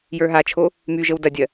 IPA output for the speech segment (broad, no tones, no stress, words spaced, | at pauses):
jə˞ɦat͡ʃʰo | my ʒəwdɐdʲɜ